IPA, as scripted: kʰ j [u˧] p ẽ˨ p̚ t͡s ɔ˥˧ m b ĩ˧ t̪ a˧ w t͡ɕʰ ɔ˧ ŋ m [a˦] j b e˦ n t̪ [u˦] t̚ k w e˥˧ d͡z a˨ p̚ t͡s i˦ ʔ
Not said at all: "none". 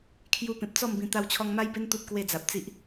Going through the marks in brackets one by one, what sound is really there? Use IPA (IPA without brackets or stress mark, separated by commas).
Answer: u˧, a˦, u˦